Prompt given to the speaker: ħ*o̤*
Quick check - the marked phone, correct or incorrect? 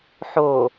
incorrect